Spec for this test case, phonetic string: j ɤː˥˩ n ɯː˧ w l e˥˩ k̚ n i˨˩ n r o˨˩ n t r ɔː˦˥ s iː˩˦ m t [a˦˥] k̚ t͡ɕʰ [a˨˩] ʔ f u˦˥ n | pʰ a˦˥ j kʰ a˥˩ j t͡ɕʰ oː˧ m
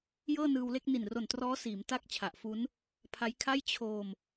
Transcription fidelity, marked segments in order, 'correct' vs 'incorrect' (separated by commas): incorrect, correct